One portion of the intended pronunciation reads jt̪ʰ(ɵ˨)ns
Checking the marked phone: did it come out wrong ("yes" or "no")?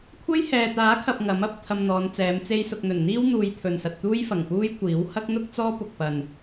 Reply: no